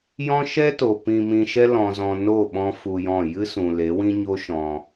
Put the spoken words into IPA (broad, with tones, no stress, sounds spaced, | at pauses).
j ɔ̃˦ ʃ ɛ˦ t o˨ p ĩ˧ m ĩ˧ ʃ ɛ˦ l ɔ̃˦ z ɔ̃˧ n o˦˨ ɓ ɔ̃˦ f u˧ j ɔ̃˦˨ j ɨ˦ s ũ˨ l e˨˦ w ĩ˦ ɲ o˦ ʃ ɔ̃˧